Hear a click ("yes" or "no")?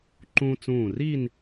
yes